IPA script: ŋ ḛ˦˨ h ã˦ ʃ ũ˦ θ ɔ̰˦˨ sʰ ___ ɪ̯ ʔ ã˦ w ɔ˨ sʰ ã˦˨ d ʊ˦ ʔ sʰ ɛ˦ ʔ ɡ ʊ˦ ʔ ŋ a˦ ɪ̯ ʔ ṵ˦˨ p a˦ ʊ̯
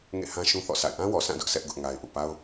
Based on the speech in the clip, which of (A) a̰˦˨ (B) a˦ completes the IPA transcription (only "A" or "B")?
A